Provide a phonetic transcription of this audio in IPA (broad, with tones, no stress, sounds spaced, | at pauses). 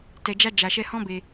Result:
t ɛ˨ d͡ʒ a˧ d͡ʒ a˨ ʃ ɛ˧ h ɔ̃˦ b e˧